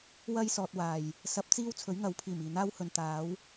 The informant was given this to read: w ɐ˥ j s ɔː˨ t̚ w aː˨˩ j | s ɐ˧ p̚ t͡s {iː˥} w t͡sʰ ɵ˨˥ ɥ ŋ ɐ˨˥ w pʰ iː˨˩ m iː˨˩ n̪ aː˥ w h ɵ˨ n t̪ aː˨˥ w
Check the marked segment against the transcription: correct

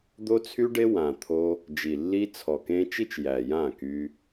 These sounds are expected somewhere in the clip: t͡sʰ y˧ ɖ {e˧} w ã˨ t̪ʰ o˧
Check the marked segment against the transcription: correct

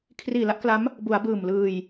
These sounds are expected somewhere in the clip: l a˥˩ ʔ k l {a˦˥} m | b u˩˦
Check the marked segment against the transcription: correct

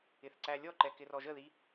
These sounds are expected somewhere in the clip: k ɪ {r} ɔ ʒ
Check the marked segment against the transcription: correct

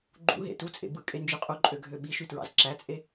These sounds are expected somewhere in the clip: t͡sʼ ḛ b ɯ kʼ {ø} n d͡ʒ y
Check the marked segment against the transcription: incorrect: e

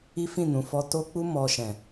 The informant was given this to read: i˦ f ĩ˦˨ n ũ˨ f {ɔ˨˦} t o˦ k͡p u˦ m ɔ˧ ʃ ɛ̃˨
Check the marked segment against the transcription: incorrect: ɔ˧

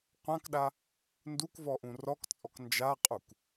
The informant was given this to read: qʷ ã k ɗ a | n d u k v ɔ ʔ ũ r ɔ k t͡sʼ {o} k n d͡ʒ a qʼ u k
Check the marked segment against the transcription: incorrect: ɔ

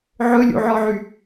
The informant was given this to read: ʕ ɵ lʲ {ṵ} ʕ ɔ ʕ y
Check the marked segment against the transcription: correct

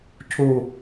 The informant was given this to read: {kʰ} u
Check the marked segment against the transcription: incorrect: cʰ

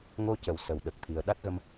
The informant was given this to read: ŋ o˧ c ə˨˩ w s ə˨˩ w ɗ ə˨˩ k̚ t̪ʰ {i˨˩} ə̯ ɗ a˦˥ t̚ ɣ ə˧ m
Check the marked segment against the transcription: correct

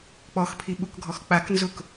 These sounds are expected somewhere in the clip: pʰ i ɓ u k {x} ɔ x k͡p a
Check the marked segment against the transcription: incorrect: ɡʱ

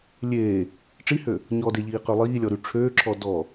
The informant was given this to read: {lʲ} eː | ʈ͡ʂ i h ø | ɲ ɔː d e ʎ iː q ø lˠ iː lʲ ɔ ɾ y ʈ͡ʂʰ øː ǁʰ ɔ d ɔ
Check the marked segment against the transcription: correct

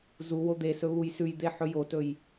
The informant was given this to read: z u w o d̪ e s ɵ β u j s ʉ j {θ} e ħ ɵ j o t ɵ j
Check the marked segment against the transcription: incorrect: d̪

